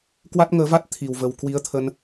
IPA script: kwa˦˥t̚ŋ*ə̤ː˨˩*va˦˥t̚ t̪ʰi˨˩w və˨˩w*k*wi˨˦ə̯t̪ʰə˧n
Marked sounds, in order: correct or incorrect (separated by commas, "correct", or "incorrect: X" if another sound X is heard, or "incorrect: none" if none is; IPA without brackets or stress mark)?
incorrect: əː˨˦, correct